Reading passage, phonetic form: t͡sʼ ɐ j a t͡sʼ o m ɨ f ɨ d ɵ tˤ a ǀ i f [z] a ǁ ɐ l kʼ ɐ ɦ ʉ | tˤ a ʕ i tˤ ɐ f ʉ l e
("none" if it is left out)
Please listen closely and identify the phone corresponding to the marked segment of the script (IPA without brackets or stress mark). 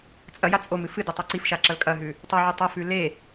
ʃ